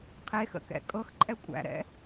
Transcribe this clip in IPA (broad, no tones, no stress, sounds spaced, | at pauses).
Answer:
qʰ e x ə̰ k ɛ̰ kʼ ɤ x ǃʼ ɛ kʷʼ æ̰ ɾ ɛ̰